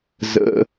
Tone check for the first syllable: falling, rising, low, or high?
low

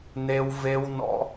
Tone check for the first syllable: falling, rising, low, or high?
high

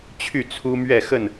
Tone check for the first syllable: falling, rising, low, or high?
falling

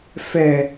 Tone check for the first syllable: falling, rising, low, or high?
high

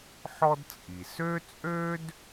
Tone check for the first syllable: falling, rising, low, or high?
high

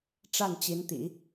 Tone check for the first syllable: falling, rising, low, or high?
falling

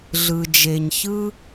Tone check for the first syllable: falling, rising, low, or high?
low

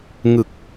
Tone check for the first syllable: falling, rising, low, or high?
low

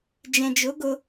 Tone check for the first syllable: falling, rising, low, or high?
low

